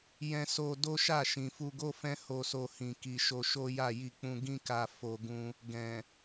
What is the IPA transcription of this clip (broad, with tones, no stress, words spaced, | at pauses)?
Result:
jɛ̃˧so˧ do˦ʃa˦˨ ʃĩ˨fu˧ɡo˦fɛ̃˦ ho˧so˧hĩ˨ki˨ ʃo˧ʃo˦ ja˦˨ji˧k͡pũ˧ ɡĩ˦ka˧ fo˧ɡũ˧ | ɡɛ̃˨